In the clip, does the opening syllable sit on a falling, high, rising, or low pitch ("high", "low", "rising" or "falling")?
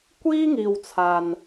high